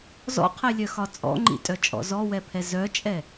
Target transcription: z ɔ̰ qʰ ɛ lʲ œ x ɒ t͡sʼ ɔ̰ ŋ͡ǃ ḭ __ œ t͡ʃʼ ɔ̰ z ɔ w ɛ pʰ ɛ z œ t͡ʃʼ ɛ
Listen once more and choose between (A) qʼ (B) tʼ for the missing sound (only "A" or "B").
B